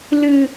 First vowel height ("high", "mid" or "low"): high